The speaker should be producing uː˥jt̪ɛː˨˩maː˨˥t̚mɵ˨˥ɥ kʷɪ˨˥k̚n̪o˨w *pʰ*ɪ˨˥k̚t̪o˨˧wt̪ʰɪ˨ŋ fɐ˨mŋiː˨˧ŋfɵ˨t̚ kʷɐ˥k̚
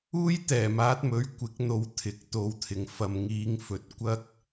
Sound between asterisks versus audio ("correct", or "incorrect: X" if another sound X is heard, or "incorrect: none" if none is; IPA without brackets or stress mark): incorrect: t̪ʰ